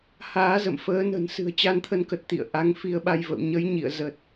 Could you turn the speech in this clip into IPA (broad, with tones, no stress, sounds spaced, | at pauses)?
h aː˨˦ z ə̰˧˨ m f əː˨˦ n ə̤˨˩ n s ɨ̤˨˩ ə̯ t͡ɕ a˧ n t̪ʰ ə˧ n k ə˨˩ t̚ t̪ ḭ˧˨ ə̯ ʔ a˨˦ ŋ f i˧ ə̯ ɓ a˧ j v ə̰˧˨ w ɲ ə˨˦ j ɲ ḭ˧˨ ə̯ z ə˨˩ t̚